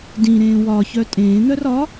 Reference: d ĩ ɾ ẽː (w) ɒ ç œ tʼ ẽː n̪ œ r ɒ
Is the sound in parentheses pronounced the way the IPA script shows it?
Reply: yes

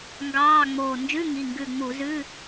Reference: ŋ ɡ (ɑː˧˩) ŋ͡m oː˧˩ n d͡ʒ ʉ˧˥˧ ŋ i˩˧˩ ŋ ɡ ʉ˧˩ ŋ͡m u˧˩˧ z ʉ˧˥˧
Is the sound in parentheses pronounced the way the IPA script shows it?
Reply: no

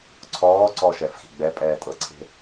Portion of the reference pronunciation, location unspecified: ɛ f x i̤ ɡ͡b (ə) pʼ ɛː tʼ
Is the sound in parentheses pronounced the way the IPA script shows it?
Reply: no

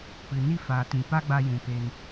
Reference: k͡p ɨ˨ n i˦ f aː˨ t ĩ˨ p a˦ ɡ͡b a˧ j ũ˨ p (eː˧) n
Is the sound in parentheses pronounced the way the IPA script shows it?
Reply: yes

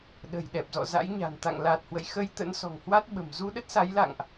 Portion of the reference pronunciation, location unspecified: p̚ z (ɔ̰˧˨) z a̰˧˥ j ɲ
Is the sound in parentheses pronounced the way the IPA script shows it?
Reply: yes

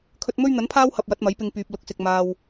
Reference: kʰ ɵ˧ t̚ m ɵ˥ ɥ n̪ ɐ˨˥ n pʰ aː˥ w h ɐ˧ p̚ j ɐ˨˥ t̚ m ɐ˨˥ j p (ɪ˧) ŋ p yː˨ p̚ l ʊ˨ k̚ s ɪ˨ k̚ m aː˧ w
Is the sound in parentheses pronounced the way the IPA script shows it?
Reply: yes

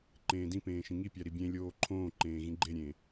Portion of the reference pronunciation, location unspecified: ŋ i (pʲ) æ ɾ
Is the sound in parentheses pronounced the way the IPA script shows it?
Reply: yes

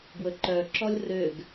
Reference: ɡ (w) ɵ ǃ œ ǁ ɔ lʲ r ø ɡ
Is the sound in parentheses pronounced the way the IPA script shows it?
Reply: yes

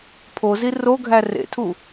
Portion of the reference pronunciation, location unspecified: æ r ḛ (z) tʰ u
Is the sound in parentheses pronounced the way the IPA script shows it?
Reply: no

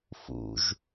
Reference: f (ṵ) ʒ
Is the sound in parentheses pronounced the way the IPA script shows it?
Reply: yes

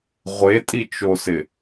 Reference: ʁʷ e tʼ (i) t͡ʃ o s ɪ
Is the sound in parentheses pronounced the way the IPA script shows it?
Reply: yes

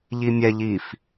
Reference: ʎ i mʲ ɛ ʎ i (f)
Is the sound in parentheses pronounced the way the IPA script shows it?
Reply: yes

